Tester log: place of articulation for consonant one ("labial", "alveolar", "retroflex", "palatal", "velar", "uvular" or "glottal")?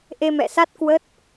glottal